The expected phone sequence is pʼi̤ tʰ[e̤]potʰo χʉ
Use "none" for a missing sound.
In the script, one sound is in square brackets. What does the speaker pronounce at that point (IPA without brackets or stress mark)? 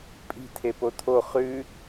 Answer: e